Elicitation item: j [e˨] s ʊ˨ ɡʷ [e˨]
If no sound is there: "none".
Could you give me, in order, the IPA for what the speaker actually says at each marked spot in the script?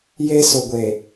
e˦, e˨

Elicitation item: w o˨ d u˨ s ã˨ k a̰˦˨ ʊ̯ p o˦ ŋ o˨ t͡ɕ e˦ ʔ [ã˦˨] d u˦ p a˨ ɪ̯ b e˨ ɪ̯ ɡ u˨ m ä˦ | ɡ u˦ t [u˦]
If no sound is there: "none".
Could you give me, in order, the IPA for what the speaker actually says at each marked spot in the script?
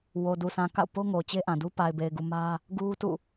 ã˨, ṵ˦˨

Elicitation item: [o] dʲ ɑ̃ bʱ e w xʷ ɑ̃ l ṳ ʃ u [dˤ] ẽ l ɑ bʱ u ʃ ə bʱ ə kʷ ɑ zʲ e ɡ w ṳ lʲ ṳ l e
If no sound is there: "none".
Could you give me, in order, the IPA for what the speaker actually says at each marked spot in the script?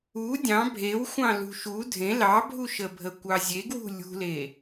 u, dʱ

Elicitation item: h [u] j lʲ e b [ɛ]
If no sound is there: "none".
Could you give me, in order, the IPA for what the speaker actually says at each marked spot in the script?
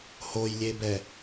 o, ɛ

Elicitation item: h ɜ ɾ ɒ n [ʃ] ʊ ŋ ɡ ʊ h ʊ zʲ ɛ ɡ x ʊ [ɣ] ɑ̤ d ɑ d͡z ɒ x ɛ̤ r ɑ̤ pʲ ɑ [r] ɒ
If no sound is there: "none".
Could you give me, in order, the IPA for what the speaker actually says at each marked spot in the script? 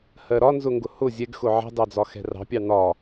z, ʕ, n̪

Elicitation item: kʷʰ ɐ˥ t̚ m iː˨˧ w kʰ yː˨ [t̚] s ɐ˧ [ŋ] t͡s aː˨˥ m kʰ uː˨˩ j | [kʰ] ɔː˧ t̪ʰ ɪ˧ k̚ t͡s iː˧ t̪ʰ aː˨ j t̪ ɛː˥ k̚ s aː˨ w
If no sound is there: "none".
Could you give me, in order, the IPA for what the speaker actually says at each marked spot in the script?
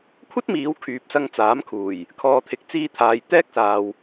p̚, ŋ, kʰ

